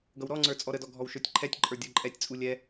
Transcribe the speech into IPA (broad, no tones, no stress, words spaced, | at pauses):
ɡʌwɾɔŋ͡ǀə˞ t͡sʼɔɾədɔ ɡʱɔwʃə˞tʲǃʰɛtʲǃʼə˞ dʲə˞ǃʼɛtʲt͡sʼu lʲɛ